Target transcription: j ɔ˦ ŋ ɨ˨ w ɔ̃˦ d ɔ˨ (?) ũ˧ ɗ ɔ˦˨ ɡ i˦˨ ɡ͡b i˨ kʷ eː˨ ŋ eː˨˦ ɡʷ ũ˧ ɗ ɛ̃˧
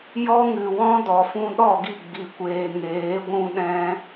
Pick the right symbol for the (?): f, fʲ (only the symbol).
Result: f